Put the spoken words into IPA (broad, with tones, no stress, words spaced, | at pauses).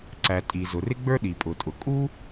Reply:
ǀæ˩ tʼi˩zʊ˩rɪ˥ ɡ͡bə˞˥ɗi˩pʼʊ˩tʼʊ˩ kʼu˥